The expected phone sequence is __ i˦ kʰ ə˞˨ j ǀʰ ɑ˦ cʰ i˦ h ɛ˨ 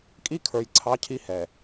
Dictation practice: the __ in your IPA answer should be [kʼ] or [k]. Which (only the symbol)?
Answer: kʼ